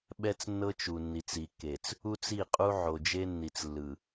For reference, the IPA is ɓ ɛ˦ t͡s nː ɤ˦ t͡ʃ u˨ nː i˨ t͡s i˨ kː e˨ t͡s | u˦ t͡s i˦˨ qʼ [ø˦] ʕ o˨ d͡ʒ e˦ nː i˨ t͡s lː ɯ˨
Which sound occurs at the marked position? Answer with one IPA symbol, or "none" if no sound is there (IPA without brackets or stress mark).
u˦